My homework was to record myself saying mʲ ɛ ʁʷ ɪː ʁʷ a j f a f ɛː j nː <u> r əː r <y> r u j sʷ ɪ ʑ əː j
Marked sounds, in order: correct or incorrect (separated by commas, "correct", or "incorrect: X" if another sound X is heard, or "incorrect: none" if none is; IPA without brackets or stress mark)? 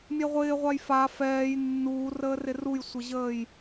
incorrect: uː, incorrect: ɪ